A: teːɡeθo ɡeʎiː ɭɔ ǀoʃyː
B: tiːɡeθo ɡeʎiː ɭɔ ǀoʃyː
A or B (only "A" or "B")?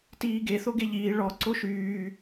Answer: B